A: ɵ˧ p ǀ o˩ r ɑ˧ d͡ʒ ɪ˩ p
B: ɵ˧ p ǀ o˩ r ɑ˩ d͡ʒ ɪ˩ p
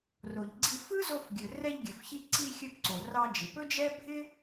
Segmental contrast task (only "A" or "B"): A